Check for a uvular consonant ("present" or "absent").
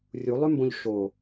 absent